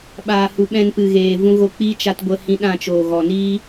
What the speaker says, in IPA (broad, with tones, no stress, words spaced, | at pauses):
ɓaː˨hu˨ɓɛ̃˧n pɨ˨ɣeː˨vũ˧ ɣo˧k͡piː˦ t͡ʃa˧t ɡʷə˧hĩ˧ɗã˦˨t͡ʃoː˨ ɣɔ˨niː˦